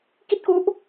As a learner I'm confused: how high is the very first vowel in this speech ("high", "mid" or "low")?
high